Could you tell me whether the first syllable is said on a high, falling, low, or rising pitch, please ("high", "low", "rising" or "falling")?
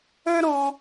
high